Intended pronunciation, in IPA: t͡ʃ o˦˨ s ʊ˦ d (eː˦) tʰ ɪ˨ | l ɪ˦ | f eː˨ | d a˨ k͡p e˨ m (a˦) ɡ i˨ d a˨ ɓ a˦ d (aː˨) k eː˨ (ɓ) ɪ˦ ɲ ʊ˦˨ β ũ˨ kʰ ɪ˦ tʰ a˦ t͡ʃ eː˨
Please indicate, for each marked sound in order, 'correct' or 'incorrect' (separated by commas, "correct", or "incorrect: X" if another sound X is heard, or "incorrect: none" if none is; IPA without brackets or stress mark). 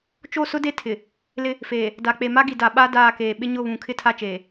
incorrect: e˦, correct, incorrect: aː˦˨, correct